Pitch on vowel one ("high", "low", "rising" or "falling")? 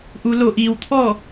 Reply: low